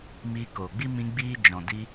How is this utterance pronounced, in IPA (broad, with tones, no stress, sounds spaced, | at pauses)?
m iː˧ k oː˨ ɡ͡b i˦ m ĩ˧ ɡ͡b iː˧ d͡ʒ ɔ̃˨ d i˧